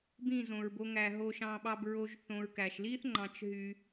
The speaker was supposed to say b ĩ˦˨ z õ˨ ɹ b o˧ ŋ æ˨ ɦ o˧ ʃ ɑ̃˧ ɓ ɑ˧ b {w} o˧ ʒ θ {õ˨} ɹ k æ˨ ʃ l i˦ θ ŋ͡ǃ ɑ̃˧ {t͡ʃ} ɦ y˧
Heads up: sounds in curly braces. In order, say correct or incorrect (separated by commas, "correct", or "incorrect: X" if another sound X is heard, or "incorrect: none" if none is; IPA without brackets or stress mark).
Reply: incorrect: ɹ, correct, correct